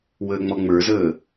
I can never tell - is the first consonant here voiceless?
no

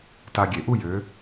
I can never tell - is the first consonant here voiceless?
yes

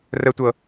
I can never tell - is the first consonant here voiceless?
no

